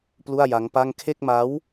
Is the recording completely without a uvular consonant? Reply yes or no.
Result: yes